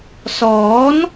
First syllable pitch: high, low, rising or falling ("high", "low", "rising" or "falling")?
rising